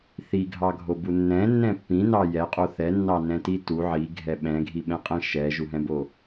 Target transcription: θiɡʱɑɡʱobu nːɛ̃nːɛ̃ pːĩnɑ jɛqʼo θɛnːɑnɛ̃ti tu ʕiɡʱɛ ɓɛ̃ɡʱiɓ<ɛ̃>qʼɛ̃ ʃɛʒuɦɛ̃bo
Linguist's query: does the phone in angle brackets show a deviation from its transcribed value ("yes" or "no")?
no